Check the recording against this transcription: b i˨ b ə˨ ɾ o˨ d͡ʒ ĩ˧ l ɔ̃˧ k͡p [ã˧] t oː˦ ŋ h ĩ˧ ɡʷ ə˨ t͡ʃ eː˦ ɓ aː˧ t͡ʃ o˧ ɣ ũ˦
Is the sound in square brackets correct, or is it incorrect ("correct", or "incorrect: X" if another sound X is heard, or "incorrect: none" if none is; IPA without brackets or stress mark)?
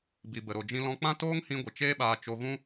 incorrect: ã˦